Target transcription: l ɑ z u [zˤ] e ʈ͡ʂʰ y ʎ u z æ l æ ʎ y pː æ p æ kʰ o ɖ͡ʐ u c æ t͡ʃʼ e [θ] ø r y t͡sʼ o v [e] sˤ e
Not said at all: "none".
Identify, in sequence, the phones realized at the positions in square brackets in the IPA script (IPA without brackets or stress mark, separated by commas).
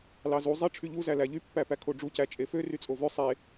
zˤ, f, ø